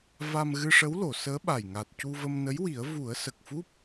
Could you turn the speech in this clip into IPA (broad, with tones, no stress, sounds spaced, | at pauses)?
v a˧ m ɣ ɨ˧ ʂ ə˧˥ w l o˨˩˨ s əː˧˥ ɓ a˨˩ j ŋ a˨˩ t̚ c u˧ v ə˧ m n ə˧˥ j w i˨˩˦ ə̯ v u˨˩˦ ə̯ s ə˨˩ k̚ f u˦˥ p̚